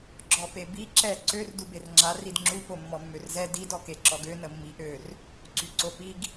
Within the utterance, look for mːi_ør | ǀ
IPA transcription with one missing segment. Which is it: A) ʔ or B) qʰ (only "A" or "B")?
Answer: A